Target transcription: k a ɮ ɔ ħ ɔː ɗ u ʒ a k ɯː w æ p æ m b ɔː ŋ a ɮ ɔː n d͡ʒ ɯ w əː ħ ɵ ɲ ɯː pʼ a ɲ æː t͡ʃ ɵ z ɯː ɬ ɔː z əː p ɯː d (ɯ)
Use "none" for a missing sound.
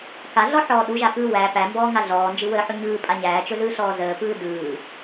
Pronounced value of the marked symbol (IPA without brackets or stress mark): ɯː